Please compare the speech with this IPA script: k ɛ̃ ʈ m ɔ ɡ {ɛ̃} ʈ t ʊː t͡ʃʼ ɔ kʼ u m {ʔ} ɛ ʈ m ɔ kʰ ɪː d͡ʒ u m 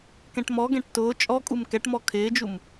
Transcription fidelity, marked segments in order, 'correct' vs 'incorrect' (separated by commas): correct, incorrect